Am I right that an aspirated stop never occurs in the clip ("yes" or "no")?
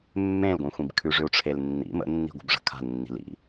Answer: no